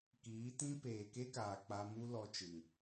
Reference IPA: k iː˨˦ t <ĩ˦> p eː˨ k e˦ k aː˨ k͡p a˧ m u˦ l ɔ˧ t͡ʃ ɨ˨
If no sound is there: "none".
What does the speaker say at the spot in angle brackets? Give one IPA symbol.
ĩ˦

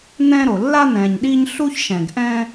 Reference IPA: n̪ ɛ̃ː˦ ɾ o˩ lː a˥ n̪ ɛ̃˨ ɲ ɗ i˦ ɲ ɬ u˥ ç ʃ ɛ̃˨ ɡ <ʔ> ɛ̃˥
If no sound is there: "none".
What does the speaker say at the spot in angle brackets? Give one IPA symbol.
ʔ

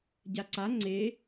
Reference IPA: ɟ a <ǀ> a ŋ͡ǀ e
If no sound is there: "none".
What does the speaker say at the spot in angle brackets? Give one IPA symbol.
ǀ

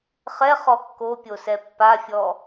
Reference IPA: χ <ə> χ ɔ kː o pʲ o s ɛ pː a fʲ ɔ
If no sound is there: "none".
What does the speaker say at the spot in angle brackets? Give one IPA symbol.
ɛ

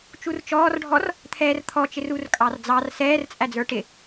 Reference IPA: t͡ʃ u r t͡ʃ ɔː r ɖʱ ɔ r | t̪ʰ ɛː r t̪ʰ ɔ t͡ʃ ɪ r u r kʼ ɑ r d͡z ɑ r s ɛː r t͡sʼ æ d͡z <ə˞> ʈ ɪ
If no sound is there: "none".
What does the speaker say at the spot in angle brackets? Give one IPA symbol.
ə˞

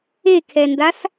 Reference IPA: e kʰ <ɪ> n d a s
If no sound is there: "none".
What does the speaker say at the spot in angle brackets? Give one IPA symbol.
ɛ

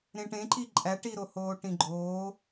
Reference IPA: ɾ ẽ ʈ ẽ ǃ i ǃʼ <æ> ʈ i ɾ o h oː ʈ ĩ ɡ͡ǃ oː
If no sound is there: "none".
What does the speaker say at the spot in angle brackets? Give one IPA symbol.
æ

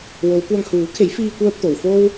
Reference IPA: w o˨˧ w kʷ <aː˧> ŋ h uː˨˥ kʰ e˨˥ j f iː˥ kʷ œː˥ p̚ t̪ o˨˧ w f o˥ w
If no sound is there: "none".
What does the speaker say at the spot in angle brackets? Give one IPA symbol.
aː˧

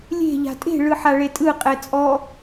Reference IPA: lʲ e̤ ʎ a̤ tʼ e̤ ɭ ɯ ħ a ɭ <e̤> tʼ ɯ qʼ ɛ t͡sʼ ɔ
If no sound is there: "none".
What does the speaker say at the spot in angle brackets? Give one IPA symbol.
e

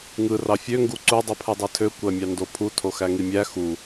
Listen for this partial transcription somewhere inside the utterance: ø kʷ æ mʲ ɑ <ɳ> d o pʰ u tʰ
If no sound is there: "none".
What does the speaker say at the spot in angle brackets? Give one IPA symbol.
n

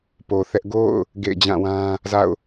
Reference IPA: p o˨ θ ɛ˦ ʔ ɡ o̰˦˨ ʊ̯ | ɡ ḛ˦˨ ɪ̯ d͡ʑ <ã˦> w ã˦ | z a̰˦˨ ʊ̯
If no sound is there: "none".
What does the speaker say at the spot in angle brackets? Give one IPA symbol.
ã˦˨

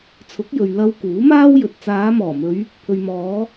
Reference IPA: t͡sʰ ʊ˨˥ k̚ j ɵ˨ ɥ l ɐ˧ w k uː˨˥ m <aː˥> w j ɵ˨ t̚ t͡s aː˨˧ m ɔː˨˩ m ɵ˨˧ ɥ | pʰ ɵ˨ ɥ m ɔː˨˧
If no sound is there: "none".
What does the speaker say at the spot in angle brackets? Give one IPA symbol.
aː˥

